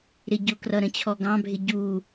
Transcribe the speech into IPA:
ɾ ɪ ɟ ʊ k r ʌ ɾ ə̃ t͡ɕʰ ɔ ɡ ɑ̃ bʱ ɪ ɟ u

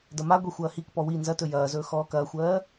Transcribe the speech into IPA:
d ɐ m a ɡʷ i xʷ ɐː h i k p ɔ w i n z ɐ t ɵ j ɐː z ɵː x ɔː k ɐː xʷ ɜː

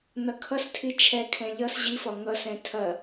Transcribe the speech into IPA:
n ʌ kʰ ʌ s tʰ i t͡ʃʰ ɛ kʰ ɛ̃ ʎ ʌ s ʑ i f ɒ ŋ ʌ s ɛ̃ tʰ ɐ

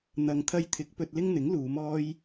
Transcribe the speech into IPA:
n̪ ɐ˨ ŋ t̪ʰ ɐ˧ j t̪ʰ ɪ˨˥ k̚ p ɵ˧ t̚ l ɪ˥ ŋ n̪ ɪ˨˥ ŋ l uː˨˧ m ɔː˥ j

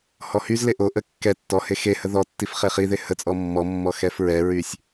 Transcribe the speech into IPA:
h ɔ h y z l e ʔ o ʔ ə kː ɛ tː ɔ h e x e h ə ð ɔ tː i f χ e χ i ð e h ə t͡sʼ ɔ mː ɔ mː ɔ x ɛ f ɹ ɛ ɹ y sʲ

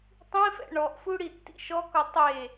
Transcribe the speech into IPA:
tˤ ĩ f ɛ̰ ɳ ɔ ʔ f u ɽ i tː ḭ ʃ ɔ k ɔ tˤ e

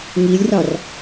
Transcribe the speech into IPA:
ŋ i lʲ r ɑ r

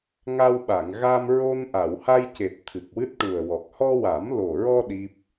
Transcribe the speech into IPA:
ŋ a˧ w ɓ a˨˩˨ ŋ ɣ a˧ m ɹ o˧ n ʔ a˨˩˨ w h a˧ j c e˨˩ t̚ t̪ʰ ɨ˨˩ k̚ w ɨ˦˥ t̚ ʈ u˨˩ ə̯ w ɔ˨˩ k̚ h ɔ˧ w a˨˩˦ m l o˨˩ ɹ ɔ˧ ɗ i˦˥ p̚

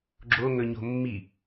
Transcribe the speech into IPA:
ɡ͡ǁ o ŋ ɵ ɲ o̤ mː i

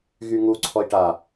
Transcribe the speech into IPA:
ɣ y ŋ u ǀʰ ɔ i̯ ʈ a

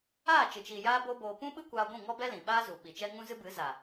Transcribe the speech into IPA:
aː˦˨ t͡ʃ ɨ˨ t͡ʃ i˨ j aː˦ b o˦ b oː˧ p ũ˦ ɓ ɨ˦ kʷ aː˧ ɡʷ ũ˦˨ ŋ ɔ˦ b ɛ˦ l ĩ˨ ɓ aː˦ z u˨ ɓ i˨ t͡ʃ ɛ˦ ŋ ũ˦ z ɨ˦ b ɨ˨˦ z a˨

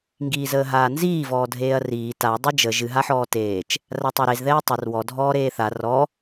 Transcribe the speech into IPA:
ŋ ɡ iː z əː ɦ aː n z iː v ɔː dʱ eː ɐ̯ r iː t a dˤ ɨ d͡ʒ ə ʒ ɨ ɦ a ħ ɔː t eː t͡ʃ | r a tˤ a ɾ e z ð ɛː tˤ ɛ r w ɔ dʱ ɔː ɾ eː θ a r ɔ

